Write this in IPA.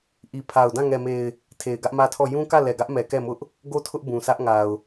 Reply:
ʔ i˨ pʰ a˨ ʊ̯ d ã˦˨ ŋ ɛ˨ m e˨ ɪ̯ | tʰ e˨ ɪ̯ ɡ ä˦ ʔ m ä˦ tʰ ɔ˦˨ j ũ˦ k ä˦˨ l ɛ˨ ɡ ä˦ ʔ m ɛ˨ k ɛ˦˨ m ʊ˦ ʔ | ɡ o˦˨ tʰ ʊ˦ ʔ b ũ˨ sʰ ä˦ ʔ ŋ a˨ ʊ̯

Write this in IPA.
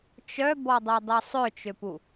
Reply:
t͡ʃ œ b ɔ dˤ u dˤ i sˤ ø t͡ʃ ø p u

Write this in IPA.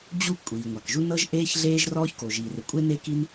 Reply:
d͡ʑ u˥ kʷʼ iː˩ ŋʷ a˩ k ʒ u˥ n ɤ˥ ʒ ʔ eː˥ ç ɮ eː˥ ʒ r ɔː˥ ç k o˩ ʒ iː˩ r ɯ˩ kʷʼ e˥ n e˥ k i˥ n

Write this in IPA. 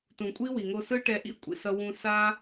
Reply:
t ũ˨ kʷʼ i˦ w i˨ ŋ o˧ s ɯ˦ ʈ ɛ˧ ʔ ḭ˦ kʷʼ ḭ˨ s ʌ˧ w ũ˧ s a˦

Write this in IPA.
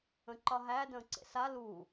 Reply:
ə̃ ǃ ɒ ɦ æ d ə̃ː ǀ ḛ s a l uː

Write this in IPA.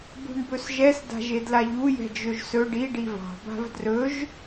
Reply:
b ṳ ɳ b ɵ s ʒ ɛ s d a̤ ʒ e d l a ʎ u j ɛ̤ d͡ʒ ɵ ʒ s ɵ ɖ i ɖ i v ɑ̤ b a̤ v d r ɵ ʒ

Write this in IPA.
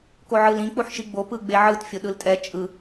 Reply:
k o ʕ ɯ l ĩ k͡p u ħ ʃ i ɡ͡b o p ɯ ɡ͡b e ʕ ɯ t fʲ o ɗ ɯ l tʼ ɛ t͡ʃʼ ɯ

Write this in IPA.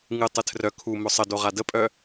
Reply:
ŋ ɨ tˤ ɨ tʰ r œ kʰ u m ʊ sˤ ə d o ʁ a d ə pʼ œ

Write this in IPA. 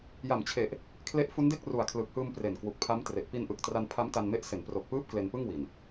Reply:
j a˨˩ m t͡ɕʰ e˨˩ ʔ | kʰ l e˦˥ ʔ f u˦˥ n d e˥˩ k̚ r u˨˩ a̯ kʰ l ɯ˨˩ k̚ h ɯː˧ m p r e˨˩ n k w u˨˩ k̚ pʰ a˦˥ m t r e˨˩ ʔ p i˧ n ʔ ɯ˨˩ k̚ t r a˧ n pʰ a˦˥ m t a˧ n m e˦˥ ʔ s e˩˦ n p r o˨˩ k̚ p ɯː˦˥ p̚ k l e˧ n p ɯ˥˩ ŋ w i˨˩ n

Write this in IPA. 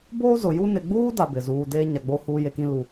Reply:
b oː˦ z ʊ˨ j u˦ n ɪ˨ ɡ͡b uː˦ d a˦ b ɪ˨ z uː˨ d eː˦ ɲ a˨ ɡ͡b o˦ h uː˦ j e˦ k ĩ˦ l u˨

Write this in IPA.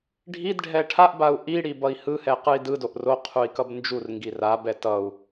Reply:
ɖʱ i d ɖʱ ɛ ʈʰ a ʔ b a u̯ ʔ i ɽ i b ʌ i̯ h ɯ h ɛ q ɯ i̯ d ɯ d o ʔ r o qʰ u i̯ k ʌ b n d͡ʒ u r ŋ ɡ i r a b ɛ t ʌ u̯

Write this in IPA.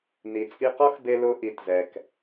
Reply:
n i˨ t͡sʼ i˧ q ɔ˦ x b e˧ l ʊ˧ ʔ i˨ t z ɛ˨ k

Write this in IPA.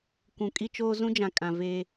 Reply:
kʷ ũ˨ kʼ i˦ t͡ʃ oː˦ z ũ˦ d͡ʒ ã˨ kʼ ã˨ v e˨

